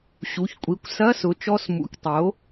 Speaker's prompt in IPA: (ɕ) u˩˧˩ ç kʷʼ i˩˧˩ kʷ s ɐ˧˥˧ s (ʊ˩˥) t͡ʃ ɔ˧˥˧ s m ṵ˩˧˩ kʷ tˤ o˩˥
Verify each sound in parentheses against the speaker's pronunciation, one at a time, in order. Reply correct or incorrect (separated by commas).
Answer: correct, correct